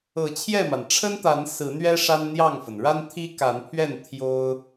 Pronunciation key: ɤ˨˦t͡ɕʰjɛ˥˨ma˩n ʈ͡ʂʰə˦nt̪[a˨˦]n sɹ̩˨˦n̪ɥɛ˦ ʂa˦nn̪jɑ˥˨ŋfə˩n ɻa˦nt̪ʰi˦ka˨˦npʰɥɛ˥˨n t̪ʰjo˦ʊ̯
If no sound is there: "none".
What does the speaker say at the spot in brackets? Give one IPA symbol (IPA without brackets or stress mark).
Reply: a˨˦